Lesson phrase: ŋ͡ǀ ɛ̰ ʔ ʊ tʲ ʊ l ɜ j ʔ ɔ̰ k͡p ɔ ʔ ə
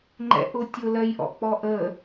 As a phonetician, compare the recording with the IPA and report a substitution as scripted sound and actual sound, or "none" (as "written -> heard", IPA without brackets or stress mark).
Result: ŋ͡ǀ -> ŋ͡ǃ